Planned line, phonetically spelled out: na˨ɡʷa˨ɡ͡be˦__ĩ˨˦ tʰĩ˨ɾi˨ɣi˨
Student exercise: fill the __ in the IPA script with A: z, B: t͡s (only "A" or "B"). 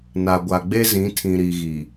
A